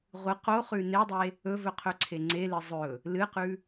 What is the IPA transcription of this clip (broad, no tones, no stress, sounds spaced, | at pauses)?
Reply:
ʁʷ ɨ q o χ ʉ n e dˤ e | ɵ v ɵ qʰ ɵ ǀʰ e ŋ͡ǀ e l ɨ zˤ ɵ | l ɨ q ʉ